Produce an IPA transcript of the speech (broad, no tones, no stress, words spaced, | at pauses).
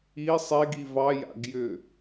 i sˤeɡi vɑja̰ɡjʏ